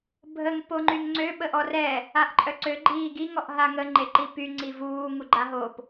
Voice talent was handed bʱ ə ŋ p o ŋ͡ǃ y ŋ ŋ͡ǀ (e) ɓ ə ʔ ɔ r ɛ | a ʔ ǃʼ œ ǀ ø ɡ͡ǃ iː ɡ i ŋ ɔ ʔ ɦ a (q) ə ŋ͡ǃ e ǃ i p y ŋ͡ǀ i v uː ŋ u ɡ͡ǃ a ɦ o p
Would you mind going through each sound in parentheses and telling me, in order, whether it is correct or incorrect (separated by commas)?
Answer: incorrect, incorrect